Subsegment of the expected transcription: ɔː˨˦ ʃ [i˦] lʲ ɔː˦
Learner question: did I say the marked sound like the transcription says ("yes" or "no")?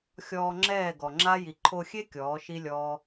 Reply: yes